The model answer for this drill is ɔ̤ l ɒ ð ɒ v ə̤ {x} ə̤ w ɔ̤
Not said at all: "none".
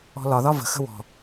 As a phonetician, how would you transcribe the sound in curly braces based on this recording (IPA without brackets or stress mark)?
x